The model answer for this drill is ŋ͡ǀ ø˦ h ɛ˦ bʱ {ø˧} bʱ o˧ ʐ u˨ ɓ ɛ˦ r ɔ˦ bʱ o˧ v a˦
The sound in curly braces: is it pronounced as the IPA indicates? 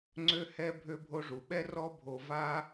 yes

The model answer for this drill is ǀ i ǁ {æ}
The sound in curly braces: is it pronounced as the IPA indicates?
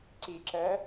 no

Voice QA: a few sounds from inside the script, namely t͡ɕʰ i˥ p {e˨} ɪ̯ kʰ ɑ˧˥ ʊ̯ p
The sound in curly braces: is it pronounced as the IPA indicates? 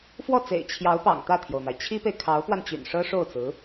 yes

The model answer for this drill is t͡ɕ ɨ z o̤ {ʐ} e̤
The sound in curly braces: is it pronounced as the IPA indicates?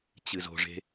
yes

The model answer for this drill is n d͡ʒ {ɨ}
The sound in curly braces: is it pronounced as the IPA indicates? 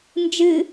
yes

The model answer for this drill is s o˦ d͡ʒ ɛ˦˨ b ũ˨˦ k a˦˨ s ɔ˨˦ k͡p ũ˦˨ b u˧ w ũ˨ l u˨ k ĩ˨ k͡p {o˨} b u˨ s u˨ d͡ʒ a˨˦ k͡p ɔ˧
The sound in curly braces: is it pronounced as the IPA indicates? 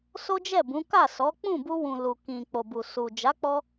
yes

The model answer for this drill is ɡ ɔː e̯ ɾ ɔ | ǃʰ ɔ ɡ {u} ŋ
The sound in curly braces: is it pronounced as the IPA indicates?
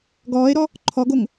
no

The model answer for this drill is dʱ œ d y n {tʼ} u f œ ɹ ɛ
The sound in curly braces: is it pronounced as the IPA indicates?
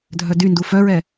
no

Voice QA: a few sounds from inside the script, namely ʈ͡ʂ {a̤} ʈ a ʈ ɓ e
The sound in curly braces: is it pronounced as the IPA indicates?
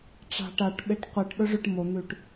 yes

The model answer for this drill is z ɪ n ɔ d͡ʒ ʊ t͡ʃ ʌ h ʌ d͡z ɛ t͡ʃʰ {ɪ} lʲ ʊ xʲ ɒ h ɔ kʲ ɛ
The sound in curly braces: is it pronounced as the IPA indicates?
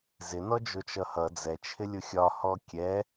yes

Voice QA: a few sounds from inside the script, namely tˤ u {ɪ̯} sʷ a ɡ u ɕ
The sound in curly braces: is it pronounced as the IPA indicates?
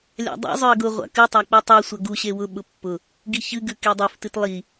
no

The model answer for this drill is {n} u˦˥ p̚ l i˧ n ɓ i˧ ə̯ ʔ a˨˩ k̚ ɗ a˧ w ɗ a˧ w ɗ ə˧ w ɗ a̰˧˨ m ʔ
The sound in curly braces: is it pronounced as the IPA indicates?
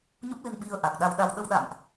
no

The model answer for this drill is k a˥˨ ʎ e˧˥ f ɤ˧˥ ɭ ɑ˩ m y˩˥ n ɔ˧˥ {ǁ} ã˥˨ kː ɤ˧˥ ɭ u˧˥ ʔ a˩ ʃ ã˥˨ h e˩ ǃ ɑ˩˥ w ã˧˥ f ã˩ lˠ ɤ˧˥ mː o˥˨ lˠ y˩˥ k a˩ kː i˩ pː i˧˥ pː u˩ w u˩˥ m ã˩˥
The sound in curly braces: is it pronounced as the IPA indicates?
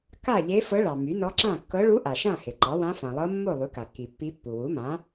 yes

